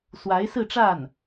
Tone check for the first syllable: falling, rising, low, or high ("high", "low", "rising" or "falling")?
rising